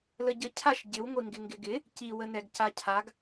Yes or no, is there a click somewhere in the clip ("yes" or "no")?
no